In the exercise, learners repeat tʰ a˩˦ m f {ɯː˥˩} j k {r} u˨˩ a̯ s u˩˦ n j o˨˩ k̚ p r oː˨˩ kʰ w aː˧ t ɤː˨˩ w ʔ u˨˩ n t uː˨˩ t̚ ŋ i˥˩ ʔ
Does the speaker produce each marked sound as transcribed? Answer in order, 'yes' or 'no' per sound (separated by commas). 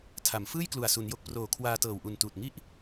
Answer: yes, no